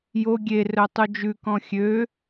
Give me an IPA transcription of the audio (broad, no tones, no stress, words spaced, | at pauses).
jo ɡʲe rœtˤud͡ʒʉkɔ̃ xʲø